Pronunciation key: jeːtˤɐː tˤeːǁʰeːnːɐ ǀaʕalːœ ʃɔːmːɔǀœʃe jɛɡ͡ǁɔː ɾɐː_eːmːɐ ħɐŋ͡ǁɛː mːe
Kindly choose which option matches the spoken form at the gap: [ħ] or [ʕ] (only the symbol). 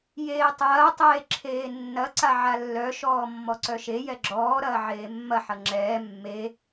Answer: ʕ